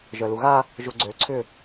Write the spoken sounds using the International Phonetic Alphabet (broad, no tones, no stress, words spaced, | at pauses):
ʒœluɣa | ʒuɡ͡ǀø ǀʰʏ